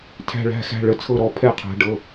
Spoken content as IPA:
tʰ æ̤˧˩ ɭ æ̤˩˧˩ x æ̤˩˧˩ ɭ ə˩˧ t͡sʰ ɤ˧˩ ɾ ɔ˩˧ pʰ ɛ˧˩ qʰ æ̤˩˧ ɖ ɤ˩˧˩

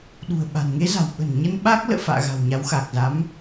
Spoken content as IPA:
ɗ ṳ˨˩ ə̯ ɓ a̤˨˩ n ŋ e˨˦ z a̤˨˩ w ɓ ə̤˨˩ n ɲ ə˧ n ɓ aː˦˥ k̚ l ə̰ː˧˨ f a̰ː˧˨ ɣ a̤˨˩ w ɲ a˨˦ w x aː˨˩ k̚ z a˨˦ m

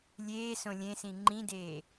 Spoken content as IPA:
lʲ eː s õ lʲ ẽ s ĩ ŋ͡ǃ ĩ d eː

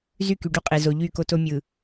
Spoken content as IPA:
z y˦˨ k y˨ ɖ u˦ qʼ e˨ z o˨ ʎ y˦˨ k o˦ t o˦ mʲ ɯ˨

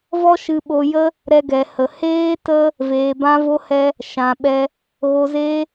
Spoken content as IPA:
v ɔ˦ ʃ ɨ˧ ɓ o˧ j ə˦ | ɾ ɛ˧ ɡ ɛ˨ h ə˨ h eː˦ t ə˦ | v eː˨ b ã˧ v o˧ h ɛ˧ | ʃ ã˨ ɓ ɛ˧ | ɣ o˧ z eː˦

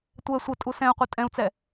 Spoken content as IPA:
tʷ ɛ sʷ ə tʼ u s ɛ̃ u̯ qʷ ʌ tʼ ɛ̃ u̯ t͡s ɛ

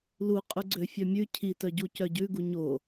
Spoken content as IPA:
l u qʼ ʉ ɡ͡ǀ ø fʲ œ mʲ ʉ cʰ i t œ ɟ u c œ ɟ ʉ ɡ u ɲ o

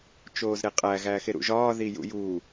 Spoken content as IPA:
t͡ʃ oː z ɾ e qʼ æ ɣ æː x e ɾ ṵ ʒ ɒː ð i j ṵ j u

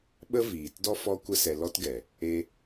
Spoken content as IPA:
ɓ ə˦ v iː˨ t d ɔ˦ f ɔ˦ kʷ ə˦ s ɛ˧ l ɔ˦ t ɡ ɛ˨ | e˧

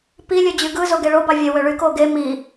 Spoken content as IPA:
p i lʲ ø d͡ʑ y ɡ ɯ z o ɡ e ɭ o b ɑ vʲ e w ø ɭ y k o ɡ e m i

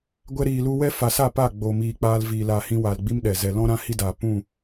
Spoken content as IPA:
ɡʷ ɛ˧ ɾ iː˨ l u˧ w ɛ˦ f a˨ s a˦˨ p a˦˨ ɡ͡b o˨ m iː˨ k͡p aː˧ l v iː˨ l a˨ h ĩ˧ w a˨ l ɡ͡b i˦ m ɗ ɛ˨ z ɛ˨ l ɔ̃˦ ɾ ã˦ h i˦ d aː˨ p ũ˦˨

